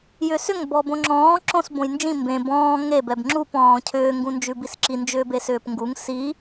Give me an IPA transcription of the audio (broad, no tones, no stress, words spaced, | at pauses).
jʏsʏŋ bɔbõŋ͡ǁɔ̃ː ǁõs bõjnd͡ʒĩ mbẽ bɔ̃ː ŋe bɛbŋ͡ǁup ɔ̃ːcʰʏː ŋɡũnd͡ʒʉbisǁi nd͡ʒʏːbesʏːpŋɡuŋ si